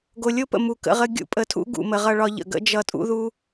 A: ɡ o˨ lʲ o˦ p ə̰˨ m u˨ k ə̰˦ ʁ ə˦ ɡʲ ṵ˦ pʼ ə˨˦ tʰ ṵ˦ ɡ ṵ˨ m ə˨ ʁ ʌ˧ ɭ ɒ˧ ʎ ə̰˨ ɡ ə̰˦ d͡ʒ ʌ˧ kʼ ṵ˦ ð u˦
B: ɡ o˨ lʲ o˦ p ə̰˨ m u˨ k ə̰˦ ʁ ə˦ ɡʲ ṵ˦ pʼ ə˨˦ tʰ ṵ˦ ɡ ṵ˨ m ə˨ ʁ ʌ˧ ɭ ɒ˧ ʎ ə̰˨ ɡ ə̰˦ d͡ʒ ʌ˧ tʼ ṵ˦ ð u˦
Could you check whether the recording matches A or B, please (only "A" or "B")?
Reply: B